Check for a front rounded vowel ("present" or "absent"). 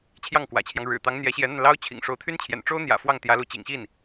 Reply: present